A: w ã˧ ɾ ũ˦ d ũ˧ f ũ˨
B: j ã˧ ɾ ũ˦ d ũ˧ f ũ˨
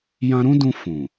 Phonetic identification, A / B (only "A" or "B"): B